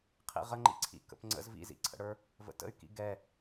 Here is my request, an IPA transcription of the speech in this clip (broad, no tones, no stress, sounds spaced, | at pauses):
qʰ ḭ ʁ ə ŋ͡ǃ ḭ ǀʰ ḭ k ə̰ p ŋ͡ǀ ə̰ z v ḭ z ḭ ǀʰ ə̰ ɽ ə˞ | v ə̰ t ə̰ y̯ k ḭ ɡ ɛ